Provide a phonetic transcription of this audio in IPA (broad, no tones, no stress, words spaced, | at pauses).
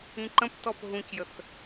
ĩǃə̃ptɔp ɦũcjəθ